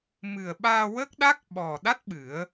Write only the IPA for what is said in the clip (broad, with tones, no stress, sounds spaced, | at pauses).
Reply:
m ɨ˨˩ ə̯ ɓ aː˧ w ə˦˥ k̚ ɗ a˦˥ k̚ ɓ ɔ˨˩ ɗ a˦˥ t̚ ɓ ɨ˨˩˦ ə̯